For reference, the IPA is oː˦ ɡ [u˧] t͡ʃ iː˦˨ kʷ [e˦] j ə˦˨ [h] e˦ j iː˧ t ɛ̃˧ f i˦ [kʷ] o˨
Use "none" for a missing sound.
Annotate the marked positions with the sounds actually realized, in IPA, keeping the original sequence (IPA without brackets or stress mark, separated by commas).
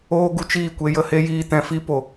u˧, e˧, h, p